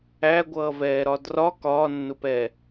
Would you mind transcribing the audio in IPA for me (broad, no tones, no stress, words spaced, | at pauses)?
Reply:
æɡʷʌːvɛːɾɒ drɒ kɒːnːʊpɛ